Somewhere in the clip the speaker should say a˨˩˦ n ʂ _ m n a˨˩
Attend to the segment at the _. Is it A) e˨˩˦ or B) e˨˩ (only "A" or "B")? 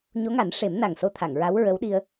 A